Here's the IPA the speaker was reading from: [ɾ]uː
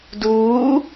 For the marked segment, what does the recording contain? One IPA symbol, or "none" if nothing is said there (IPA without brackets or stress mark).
d